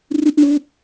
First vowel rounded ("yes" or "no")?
no